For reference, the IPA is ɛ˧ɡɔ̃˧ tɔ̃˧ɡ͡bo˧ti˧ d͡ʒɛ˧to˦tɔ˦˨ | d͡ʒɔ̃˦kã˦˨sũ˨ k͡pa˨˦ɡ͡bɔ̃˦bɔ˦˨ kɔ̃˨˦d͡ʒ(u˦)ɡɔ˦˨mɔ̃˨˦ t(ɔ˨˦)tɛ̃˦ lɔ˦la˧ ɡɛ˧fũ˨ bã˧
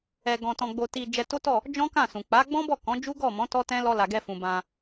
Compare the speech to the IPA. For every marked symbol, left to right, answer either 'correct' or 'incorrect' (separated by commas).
correct, incorrect